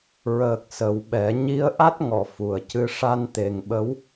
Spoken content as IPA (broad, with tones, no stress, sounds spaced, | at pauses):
ɹ əː˨˩ k̚ s ə˨˩ w ɓ ɛ˨˩˦ ɲ i˧˥ ə̯ ʔ a˦˥ t̚ ŋ ɔ˨˩˨ f u˨˩ ə̯ c ɨ˧˥ ʂ a˧ n t̪ e˨˩ ŋ ɓ ə˧˥ w